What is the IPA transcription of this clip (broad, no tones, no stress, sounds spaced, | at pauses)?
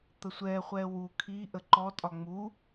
t̪ ə sʷ ɛː χʷ ɛ w u kʰ i ʔ ə ǃ ɔ tʼ ɒ ŋ͡m u